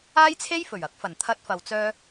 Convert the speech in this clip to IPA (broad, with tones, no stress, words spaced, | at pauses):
aː˥jt͡sʰe˥jfɵ˨˩ɥɐ˨˥k̚ fɐ˨˩nt̪ʰɐ˧t̚fɐ˨wt͡sœː˧